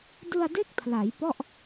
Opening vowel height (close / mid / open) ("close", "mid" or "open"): close